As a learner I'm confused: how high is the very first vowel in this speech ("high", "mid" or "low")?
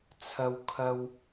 low